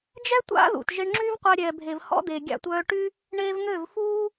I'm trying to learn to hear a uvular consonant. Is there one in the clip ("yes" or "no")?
yes